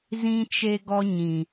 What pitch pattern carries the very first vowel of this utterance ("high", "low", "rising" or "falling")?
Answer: high